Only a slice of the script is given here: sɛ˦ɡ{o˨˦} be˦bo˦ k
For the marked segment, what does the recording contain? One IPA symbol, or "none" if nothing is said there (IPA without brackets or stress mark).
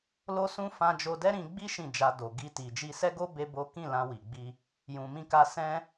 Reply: o˦